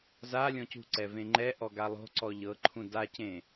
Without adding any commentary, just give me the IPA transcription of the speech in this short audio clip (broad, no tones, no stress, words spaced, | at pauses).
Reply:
za lʲɔ̃cṳǀɛ vẽŋ͡ǃɛʔɔ ɡalˠo̤ǀɔ ʎɤǃʰũ dacẽ